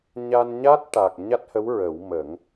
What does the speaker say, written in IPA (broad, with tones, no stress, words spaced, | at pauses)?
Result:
ɲa˧nɲa˦˥t̚ ʈa˨˩k̚ ɲa˦˥t̚hə˧˥w ɹə˨˩˦w mə˨˩˦ŋ